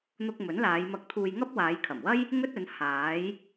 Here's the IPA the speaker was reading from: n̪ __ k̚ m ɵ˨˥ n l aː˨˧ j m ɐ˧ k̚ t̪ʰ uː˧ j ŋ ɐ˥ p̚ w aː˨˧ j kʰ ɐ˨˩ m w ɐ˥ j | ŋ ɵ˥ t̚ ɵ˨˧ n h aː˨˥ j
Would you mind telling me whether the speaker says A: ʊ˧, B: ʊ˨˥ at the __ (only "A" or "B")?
A